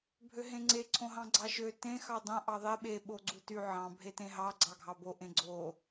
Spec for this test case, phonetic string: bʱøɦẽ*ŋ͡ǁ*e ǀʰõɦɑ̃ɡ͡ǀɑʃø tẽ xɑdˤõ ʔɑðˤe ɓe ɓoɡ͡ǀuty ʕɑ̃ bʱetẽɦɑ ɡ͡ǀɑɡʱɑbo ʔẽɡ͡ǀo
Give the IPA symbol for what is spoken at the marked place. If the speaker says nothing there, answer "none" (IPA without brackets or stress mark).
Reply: ŋ͡ǀ